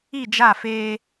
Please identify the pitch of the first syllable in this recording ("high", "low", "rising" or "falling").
falling